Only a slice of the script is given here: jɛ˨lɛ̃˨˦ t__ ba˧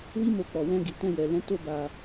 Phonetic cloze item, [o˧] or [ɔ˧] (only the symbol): o˧